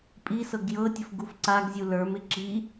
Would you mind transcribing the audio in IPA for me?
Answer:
pʼ i s ɤ ɡ j ɤ tʲ ə f ɡ u f ǀ a ɡ zʲ u l ə˞ m ɪ ǁ i

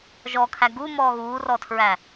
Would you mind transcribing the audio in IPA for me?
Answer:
ʒ ɔ kʰ æ ɡ u m ɔː ɣ uː r ɔ tʰ ɹ æ

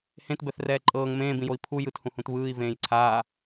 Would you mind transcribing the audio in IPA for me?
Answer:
h ẽ t b ɛ θ r ɛː ǃʼ ɤː ŋ m ẽː b ĩ j o i̯ pʰ u j ɯ t h ũ h ũ t β ɯː i̯ v ẽː j ǀʰ aː

